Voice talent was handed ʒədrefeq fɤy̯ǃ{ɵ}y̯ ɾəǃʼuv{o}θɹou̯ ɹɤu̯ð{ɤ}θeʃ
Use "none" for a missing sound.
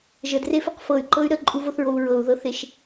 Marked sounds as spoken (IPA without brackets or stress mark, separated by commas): ɤ, o, ɤ